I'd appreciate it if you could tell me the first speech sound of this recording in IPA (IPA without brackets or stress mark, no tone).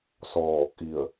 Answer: s